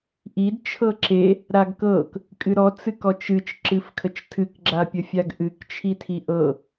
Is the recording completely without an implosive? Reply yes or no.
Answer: yes